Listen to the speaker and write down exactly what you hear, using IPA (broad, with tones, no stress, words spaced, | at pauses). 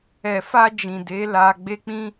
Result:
ɛ˨fa˧d͡ʒĩ˨ de˨˦la˧ ɡ͡be˦k͡pĩ˦